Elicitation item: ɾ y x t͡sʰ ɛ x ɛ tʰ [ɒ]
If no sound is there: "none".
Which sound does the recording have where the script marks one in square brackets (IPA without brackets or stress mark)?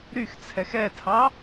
ɑ